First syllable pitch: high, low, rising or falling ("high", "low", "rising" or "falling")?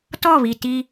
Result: falling